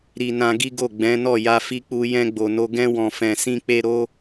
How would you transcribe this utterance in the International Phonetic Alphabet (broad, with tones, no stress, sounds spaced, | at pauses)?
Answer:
ɾ i˧ n ã˧ ɡ i˦ ɡ o˦˨ ɡ͡b ɛ̃˨˦ n ɔ˦˨ j a˧ f i˧ k͡p u˧ j ɛ̃˧ ɡ͡b o˨ n o˧ ɡ ɛ̃˧ w ɔ̃˨ f ɛ̃˨ s ĩ˧ k͡p e˧ ɾ o˧